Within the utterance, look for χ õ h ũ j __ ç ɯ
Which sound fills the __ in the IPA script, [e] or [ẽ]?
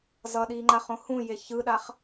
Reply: e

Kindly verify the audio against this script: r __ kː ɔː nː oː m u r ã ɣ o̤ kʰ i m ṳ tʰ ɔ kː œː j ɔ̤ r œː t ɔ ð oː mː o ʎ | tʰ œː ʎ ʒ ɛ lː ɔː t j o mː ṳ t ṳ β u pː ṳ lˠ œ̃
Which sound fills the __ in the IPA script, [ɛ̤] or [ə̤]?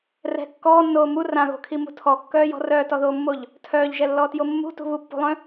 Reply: ɛ̤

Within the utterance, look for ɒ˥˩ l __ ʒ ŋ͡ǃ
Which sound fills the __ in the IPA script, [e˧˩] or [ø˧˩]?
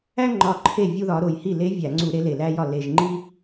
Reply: e˧˩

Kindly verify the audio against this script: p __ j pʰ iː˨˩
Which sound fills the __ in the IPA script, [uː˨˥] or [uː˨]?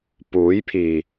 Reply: uː˨˥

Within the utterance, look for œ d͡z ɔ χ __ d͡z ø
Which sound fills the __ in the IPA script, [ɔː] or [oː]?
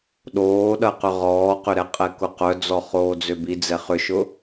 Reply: oː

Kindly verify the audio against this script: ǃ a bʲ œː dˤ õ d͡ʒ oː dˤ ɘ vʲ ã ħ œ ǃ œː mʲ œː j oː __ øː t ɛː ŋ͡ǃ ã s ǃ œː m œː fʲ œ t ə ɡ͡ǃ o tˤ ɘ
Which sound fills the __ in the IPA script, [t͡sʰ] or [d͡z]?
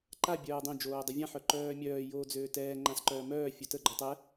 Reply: d͡z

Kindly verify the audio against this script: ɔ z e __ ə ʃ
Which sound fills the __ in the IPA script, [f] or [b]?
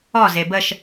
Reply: b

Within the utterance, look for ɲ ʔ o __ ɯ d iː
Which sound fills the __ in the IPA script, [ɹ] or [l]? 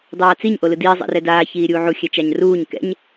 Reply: l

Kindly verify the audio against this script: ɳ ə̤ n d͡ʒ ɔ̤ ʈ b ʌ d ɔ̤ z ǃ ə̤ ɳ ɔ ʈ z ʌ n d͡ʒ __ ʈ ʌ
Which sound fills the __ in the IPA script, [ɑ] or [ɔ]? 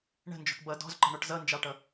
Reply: ɑ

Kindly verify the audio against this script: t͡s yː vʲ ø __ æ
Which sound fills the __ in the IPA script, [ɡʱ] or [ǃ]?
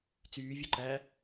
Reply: ǃ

